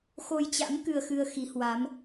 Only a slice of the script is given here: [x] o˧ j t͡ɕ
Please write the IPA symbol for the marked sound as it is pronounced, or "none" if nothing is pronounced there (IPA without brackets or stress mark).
x